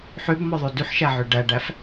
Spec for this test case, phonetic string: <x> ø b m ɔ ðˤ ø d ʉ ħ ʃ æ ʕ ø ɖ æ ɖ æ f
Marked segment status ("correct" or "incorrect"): incorrect